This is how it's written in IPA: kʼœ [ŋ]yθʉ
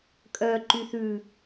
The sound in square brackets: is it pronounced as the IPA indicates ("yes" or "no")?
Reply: no